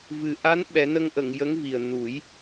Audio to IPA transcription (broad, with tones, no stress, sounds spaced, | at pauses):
v ɨ˨˩ ʔ a˧˥ n ɓ ɛ˨˩˦ n ə˧ ŋ ʔ ə˨˩˨ ŋ j ə˧˥ ŋ v i˨˩ ə̯ n u˨˩˦ j